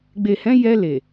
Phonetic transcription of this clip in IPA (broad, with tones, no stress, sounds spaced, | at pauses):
ɡ͡b e˨ h ɛ̃˨˦ j ɛ˧ l e˨